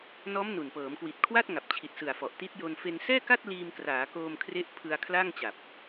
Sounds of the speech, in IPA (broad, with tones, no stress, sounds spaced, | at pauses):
n ɔː˦˥ m n u˨˩ n p ɤː˩˦ m k w i˨˩ t̚ kʰ w a˥˩ t̚ ŋ a˨˩ p̚ t͡ɕʰ i˨˩ t̚ s ɯ˨˩ a̯ f ɔ˨˩ ʔ t i˦˥ t̚ j o˧ n f e˧ n s ɛː˥˩ k a˥˩ t̚ l iː˧ m k r aː˩˦ k oː˧ m kʰ r e˦˥ ʔ pʰ ɯ˧ a̯ kʰ l a˥˩ ŋ t͡ɕ a˨˩ p̚